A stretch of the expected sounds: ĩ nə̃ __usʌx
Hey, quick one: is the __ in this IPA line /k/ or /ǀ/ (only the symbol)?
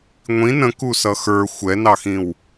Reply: k